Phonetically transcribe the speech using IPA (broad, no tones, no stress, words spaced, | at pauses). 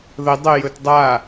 ðə dˤə jɵtdˤa